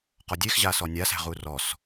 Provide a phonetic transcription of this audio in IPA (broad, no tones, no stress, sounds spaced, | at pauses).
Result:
q ɔ dʲ e x ʑ a s ɔ nʲ a s æ̤ ʁ u r ɔ s